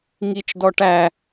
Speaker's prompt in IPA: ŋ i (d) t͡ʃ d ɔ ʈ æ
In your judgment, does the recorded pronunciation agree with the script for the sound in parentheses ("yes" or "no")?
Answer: no